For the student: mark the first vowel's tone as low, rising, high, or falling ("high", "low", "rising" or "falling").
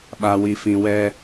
low